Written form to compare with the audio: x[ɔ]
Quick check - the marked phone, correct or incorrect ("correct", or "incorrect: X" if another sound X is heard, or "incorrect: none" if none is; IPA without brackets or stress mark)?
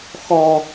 correct